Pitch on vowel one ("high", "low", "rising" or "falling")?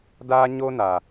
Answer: high